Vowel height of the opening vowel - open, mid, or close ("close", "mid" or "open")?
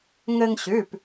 mid